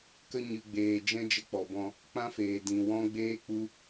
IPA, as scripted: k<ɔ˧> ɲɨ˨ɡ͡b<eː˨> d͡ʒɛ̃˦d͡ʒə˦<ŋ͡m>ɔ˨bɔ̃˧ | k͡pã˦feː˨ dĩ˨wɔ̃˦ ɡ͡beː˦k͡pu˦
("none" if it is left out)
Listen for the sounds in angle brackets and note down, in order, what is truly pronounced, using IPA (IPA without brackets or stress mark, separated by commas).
ə˧, eː˨, k͡p